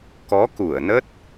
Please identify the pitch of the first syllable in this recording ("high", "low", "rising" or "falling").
rising